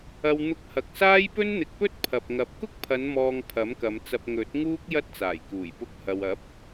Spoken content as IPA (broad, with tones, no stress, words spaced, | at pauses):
ɐ˧w n̪ʊ˧k̚hɐ˨k̚saː˥j pɵ˥nn̪ɪ˨˥k̚pɵ˥t̚ pʰɐ˨p̚ŋɐ˨˥p̚ kʊ˥k̚pʰɐ˨˧nmɔː˨ŋ pʰɐ˨˥mkɐ˨˧mt͡sɐ˧p̚ ŋɵ˨˥t̚ŋuː˥k̚ jɐ˥t̚t͡saː˨˩jkuː˨˩j pʊ˧k̚hɐ˨wɐ˨˥p̚